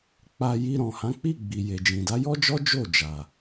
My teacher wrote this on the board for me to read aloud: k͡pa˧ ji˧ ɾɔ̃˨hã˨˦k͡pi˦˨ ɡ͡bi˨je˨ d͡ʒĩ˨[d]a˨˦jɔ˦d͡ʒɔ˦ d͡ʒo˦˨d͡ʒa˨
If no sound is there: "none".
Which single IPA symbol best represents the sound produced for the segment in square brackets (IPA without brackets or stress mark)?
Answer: d